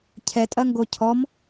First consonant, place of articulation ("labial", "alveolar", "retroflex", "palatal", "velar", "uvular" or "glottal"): palatal